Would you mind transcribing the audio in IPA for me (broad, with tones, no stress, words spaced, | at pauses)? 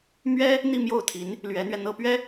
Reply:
mɥɛ˥ | n̪i˥˧mjo˥˩ʊ̯t̪ʰi˧˥n | lɥɛ˧˥n̪ɥɛ˧ n̪ɤ˥pɥɛ˥